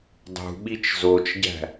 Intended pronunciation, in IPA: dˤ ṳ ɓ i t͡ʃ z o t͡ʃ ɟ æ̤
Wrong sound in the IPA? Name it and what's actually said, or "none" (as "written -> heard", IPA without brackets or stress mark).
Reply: none